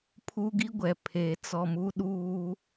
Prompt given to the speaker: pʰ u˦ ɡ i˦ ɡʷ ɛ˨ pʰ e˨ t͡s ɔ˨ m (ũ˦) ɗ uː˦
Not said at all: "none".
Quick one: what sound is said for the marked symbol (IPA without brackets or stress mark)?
u˦